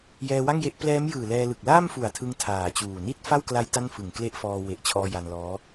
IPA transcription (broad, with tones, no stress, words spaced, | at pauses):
jɛː˧wa˥˩ŋje˦˥ʔ plɛː˦˥mjɯː˨˩ lɛː˧lɯ˨˩k̚ laː˥˩mfu˨˩a̯tʰɯ˧ŋ tʰaː˨˩t͡ɕuː˨˩ ni˥˩t̚fa˥˩wkla˦˥j ta˥˩nfɯ˨˩ŋ kle˦˥ʔfɔː˧ we˨˩ʔt͡ɕʰɔː˧ ja˧nlɔː˦˥